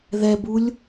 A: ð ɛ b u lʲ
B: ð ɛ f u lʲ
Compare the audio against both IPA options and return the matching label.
A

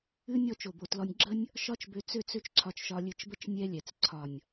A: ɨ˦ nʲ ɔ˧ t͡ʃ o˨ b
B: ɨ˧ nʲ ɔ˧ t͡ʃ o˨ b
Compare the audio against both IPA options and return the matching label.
A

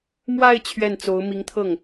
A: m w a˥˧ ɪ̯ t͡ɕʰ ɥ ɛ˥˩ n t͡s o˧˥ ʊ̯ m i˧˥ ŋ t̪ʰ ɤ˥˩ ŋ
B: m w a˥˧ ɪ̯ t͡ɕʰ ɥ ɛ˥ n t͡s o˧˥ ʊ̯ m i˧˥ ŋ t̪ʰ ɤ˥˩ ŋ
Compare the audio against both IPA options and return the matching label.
A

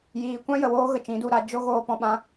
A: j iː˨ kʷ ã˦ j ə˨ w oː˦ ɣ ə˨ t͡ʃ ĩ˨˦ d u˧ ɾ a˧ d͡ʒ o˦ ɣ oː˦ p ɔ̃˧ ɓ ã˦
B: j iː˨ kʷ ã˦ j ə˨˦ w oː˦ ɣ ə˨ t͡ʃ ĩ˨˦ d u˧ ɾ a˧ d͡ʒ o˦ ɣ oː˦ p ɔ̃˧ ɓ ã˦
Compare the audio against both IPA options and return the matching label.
A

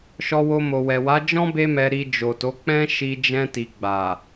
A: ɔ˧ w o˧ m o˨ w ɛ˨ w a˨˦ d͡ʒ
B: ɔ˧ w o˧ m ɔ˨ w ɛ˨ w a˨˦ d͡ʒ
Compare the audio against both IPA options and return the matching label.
A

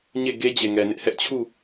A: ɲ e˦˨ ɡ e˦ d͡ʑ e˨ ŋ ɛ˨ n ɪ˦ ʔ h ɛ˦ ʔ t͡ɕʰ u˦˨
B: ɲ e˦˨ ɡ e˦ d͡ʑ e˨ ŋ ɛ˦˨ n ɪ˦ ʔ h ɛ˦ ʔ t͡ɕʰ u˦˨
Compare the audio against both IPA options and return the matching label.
A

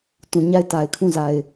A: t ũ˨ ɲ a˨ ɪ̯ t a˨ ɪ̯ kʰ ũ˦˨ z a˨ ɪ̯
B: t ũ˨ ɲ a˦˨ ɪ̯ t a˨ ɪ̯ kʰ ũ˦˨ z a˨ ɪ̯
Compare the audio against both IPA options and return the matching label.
B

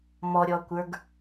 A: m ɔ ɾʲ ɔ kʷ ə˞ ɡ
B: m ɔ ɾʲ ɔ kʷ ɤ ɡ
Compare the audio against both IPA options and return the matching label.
A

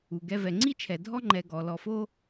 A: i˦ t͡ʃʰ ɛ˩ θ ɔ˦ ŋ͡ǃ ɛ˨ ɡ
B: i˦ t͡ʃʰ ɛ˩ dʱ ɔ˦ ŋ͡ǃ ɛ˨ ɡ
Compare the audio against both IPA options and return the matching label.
B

